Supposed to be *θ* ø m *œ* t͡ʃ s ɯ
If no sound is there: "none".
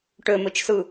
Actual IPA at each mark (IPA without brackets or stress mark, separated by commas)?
ʈ, ø